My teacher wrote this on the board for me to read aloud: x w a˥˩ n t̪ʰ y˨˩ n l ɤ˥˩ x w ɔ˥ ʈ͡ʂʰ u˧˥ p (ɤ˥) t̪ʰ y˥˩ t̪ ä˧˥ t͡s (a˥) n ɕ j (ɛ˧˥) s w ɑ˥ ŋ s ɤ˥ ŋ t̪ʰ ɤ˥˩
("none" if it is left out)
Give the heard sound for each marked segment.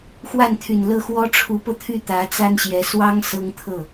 ɤ˧, a˥, ɛ˧˥

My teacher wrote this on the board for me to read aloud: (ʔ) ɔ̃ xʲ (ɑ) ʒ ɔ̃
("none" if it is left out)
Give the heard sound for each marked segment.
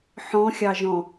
ħ, ɑ

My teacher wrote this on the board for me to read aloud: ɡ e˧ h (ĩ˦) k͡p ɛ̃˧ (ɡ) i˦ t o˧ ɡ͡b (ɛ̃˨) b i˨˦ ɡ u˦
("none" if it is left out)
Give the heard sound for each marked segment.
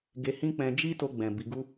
ĩ˦, d͡ʒ, ɛ̃˨

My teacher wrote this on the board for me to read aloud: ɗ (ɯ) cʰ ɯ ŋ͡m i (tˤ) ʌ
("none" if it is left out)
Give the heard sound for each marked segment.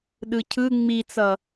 ɯ, t͡s

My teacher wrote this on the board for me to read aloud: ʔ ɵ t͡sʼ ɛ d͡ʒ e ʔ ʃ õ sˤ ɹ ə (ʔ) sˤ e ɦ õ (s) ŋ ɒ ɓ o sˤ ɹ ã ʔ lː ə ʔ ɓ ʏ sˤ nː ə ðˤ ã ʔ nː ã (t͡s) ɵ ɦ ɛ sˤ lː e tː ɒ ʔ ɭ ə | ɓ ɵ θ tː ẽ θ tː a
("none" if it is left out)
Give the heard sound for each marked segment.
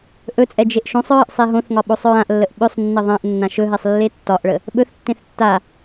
ʔ, θ, ʃ

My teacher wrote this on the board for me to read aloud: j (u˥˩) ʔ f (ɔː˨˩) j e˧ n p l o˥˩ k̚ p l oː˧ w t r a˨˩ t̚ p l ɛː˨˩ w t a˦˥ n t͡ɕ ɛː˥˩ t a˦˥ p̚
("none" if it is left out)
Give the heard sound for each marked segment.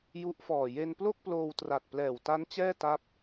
u˦˥, ɔː˨˩

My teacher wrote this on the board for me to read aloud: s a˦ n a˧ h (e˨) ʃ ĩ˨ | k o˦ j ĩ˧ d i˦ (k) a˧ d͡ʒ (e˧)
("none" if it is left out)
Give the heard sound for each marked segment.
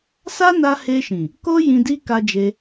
e˧, k, e˧

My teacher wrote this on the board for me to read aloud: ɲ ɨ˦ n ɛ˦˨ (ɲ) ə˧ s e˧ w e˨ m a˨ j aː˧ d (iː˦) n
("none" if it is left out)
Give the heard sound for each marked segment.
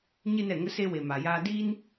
ŋ, iː˦

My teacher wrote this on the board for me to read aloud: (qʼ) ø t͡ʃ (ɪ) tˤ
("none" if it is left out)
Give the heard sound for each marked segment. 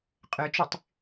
qʼ, y

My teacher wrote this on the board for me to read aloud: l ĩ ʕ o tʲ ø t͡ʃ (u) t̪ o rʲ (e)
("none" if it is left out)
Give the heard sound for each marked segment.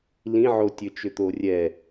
ʏ, ɛ

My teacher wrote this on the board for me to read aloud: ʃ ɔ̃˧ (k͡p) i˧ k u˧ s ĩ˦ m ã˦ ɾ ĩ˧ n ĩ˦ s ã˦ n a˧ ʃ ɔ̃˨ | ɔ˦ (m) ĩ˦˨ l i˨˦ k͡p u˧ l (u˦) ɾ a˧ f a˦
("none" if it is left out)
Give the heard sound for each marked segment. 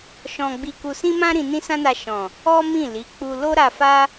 ɡ͡b, m, o˦

